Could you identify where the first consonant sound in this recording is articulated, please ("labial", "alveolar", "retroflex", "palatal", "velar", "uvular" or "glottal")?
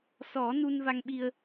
alveolar